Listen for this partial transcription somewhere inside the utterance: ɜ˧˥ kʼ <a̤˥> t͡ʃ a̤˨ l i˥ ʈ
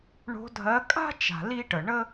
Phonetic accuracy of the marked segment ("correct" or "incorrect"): correct